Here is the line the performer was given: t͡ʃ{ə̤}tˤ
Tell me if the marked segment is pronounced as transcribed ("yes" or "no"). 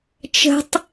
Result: yes